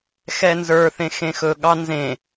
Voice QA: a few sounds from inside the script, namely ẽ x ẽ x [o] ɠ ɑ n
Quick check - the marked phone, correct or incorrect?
incorrect